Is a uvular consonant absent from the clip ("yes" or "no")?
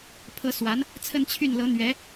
yes